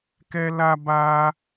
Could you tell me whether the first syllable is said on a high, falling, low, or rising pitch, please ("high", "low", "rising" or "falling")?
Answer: high